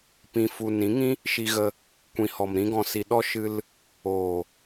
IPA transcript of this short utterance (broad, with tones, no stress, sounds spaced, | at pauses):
p ĩ˧ f u˧ n ĩ˨˦ ŋ ĩ˦ | ʃ i˧ ɣ ə˧ | kʷ ĩ˨ h ɔ˨ m ɾ ĩ˦ ɡ ɔ̃˧ s i˧ ɗ ɔ˦ ʃ ɨ˧ l | oː˨